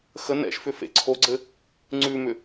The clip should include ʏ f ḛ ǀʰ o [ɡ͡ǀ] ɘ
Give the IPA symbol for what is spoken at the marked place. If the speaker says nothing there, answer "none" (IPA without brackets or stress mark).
ɡ͡ǀ